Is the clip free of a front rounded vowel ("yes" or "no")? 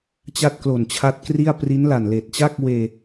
yes